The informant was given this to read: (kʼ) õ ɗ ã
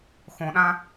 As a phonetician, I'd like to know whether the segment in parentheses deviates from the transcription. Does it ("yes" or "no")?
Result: yes